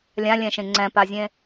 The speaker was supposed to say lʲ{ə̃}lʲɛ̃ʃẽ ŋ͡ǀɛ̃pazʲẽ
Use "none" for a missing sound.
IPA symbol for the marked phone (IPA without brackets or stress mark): ã